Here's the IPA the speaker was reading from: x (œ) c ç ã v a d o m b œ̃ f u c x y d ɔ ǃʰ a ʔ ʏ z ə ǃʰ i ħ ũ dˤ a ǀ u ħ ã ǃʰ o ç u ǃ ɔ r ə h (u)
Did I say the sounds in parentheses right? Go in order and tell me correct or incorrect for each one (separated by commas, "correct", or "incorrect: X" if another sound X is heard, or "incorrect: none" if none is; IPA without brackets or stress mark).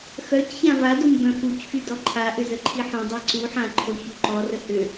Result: correct, incorrect: ʏ